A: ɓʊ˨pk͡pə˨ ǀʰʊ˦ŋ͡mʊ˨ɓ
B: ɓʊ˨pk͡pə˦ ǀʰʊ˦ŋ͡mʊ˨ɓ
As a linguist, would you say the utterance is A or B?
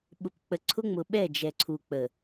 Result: A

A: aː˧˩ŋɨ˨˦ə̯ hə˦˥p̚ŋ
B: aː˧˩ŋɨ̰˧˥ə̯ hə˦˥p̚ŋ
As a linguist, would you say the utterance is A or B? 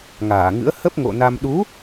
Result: B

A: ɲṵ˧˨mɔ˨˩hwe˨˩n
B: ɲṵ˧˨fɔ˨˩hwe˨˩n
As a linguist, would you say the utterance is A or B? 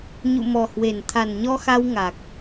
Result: A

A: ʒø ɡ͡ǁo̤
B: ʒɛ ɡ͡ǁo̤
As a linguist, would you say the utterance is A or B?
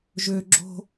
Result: A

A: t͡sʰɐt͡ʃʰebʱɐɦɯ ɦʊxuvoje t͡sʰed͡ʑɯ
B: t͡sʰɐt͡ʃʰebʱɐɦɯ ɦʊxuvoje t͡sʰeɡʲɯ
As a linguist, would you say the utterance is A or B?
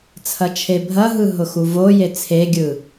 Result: B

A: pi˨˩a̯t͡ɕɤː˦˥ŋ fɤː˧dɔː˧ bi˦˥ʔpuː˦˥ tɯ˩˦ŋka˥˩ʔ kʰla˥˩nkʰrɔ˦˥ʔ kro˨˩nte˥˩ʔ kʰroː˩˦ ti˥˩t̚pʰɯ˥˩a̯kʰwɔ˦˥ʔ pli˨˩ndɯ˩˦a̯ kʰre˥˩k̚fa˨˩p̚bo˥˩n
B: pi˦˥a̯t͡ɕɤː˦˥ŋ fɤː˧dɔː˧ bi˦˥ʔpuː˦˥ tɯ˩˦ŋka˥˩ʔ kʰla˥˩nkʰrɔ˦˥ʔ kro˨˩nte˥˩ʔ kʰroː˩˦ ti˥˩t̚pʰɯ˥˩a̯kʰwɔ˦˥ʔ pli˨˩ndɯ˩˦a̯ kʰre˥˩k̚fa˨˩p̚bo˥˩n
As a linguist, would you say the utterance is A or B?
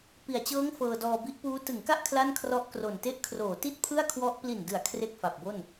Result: A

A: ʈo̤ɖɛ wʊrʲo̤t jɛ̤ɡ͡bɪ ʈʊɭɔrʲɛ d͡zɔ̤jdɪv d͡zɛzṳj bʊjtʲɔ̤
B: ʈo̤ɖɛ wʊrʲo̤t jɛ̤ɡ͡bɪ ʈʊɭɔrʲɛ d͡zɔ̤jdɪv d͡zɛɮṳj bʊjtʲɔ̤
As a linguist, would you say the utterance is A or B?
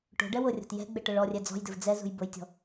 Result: A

